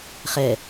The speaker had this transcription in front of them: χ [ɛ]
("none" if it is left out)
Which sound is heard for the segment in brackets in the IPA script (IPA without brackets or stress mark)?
ɛ